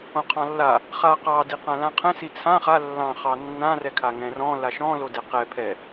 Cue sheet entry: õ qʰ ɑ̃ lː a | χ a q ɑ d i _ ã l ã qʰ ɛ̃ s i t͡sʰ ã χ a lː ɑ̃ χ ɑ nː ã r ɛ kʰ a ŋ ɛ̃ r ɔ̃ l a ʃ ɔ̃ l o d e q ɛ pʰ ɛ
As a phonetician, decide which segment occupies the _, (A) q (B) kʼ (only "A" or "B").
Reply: A